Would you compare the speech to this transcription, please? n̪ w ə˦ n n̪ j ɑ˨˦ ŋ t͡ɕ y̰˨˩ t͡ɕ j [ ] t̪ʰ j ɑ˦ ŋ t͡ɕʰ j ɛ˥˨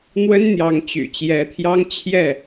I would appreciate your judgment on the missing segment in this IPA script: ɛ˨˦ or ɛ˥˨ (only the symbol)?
ɛ˨˦